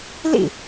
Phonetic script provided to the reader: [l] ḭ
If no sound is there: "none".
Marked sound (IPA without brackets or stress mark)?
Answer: l